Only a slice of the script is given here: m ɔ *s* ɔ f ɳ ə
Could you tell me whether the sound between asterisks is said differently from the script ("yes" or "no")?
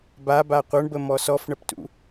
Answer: no